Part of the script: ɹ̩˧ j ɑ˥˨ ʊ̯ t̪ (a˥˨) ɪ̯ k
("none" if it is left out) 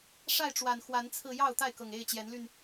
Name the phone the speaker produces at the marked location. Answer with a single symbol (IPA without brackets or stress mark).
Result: a˥˨